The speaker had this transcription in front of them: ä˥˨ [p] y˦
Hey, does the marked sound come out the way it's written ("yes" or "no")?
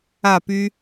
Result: yes